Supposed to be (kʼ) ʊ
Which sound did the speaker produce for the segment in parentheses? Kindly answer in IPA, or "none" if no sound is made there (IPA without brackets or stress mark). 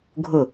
ɡʱ